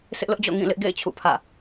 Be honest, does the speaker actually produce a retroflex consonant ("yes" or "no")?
no